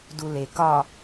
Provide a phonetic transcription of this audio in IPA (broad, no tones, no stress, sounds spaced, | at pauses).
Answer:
d u l e k ɒ